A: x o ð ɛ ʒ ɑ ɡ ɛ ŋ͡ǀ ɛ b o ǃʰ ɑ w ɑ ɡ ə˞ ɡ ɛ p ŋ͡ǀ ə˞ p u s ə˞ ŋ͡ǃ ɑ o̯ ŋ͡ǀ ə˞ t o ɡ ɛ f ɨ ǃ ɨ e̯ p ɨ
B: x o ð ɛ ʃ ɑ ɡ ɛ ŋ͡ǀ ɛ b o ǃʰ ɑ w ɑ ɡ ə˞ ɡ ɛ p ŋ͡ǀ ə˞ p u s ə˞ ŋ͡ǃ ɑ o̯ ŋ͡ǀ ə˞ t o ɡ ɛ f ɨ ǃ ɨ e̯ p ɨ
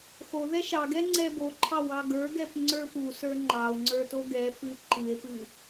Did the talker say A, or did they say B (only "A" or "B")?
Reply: B